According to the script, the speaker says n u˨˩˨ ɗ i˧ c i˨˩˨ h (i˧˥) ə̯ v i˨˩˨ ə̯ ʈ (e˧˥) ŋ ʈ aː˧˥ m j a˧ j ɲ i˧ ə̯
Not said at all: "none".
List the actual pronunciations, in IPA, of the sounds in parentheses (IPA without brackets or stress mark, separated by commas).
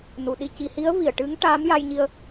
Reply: i˧˥, ɨ˧˥